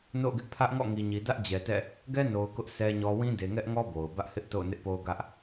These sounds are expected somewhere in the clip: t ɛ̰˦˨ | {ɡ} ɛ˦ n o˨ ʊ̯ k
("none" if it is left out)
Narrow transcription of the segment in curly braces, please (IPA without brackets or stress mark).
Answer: ɡ